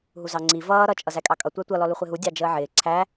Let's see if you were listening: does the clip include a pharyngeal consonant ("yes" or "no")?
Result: yes